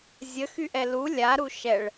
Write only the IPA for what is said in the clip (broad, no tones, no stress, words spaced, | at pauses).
zʲəxyʔɛ lu lʲaɾu ʃɛɭ